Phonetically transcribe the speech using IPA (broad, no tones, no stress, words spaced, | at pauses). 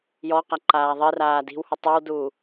jɔqa ǃaːðˤiraː di̤whu tˤʉwduː